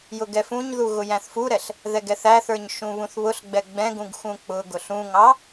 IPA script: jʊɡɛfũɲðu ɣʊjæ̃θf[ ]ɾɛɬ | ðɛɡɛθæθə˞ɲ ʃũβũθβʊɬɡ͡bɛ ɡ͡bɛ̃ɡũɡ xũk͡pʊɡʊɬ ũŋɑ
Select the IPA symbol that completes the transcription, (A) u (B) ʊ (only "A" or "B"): A